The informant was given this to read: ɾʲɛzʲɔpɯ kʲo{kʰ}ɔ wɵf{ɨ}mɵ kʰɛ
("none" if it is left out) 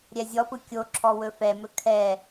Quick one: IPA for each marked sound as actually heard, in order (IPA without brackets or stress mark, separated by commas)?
ǁʰ, ɛ